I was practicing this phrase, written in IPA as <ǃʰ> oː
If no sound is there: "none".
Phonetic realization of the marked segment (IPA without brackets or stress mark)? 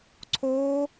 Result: ǀʰ